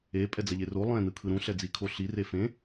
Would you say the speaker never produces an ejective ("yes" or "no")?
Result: no